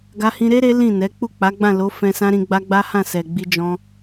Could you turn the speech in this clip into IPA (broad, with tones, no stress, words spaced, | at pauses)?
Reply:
ɡa˧hĩ˧ɾe˦ ɾe˦lĩ˦˨nɛ˨˦ k͡pu˦˨k͡pa˨˦ɡ͡bã˦˨lo˨˦ fɛ̃˧sã˦ ɾĩ˧ɡ͡ba˦ ɡ͡ba˦hã˦˨sɛ˨ ɡ͡bi˧d͡ʒɔ̃˧